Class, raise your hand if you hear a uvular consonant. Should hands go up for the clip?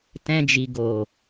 no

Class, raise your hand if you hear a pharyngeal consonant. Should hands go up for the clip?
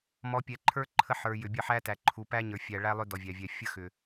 yes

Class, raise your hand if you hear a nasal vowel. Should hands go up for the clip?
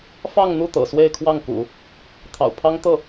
no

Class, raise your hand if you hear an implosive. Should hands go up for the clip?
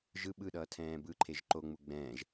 yes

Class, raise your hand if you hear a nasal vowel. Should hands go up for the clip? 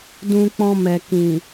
yes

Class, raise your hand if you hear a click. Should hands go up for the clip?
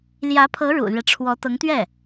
no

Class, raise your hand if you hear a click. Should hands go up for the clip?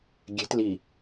no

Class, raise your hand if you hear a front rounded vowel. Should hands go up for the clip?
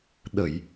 no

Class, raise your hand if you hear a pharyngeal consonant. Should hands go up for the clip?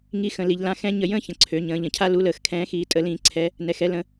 no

